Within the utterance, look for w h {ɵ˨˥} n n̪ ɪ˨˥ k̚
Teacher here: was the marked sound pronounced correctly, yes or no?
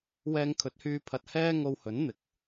yes